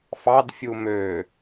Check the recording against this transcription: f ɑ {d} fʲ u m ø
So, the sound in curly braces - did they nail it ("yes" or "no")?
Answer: yes